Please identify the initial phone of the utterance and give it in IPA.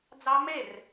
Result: d͡z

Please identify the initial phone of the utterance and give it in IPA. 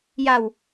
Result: j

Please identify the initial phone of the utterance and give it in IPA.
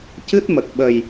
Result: c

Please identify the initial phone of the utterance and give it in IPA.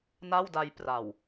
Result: n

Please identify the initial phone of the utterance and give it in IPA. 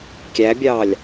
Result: kʲ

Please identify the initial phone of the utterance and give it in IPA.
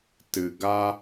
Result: t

